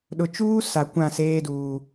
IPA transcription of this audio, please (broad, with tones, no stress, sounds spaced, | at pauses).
ɗ ʊ˨ t͡ʃ uː˦ s a˨ kʷ ã˦˨ s eː˦ d uː˨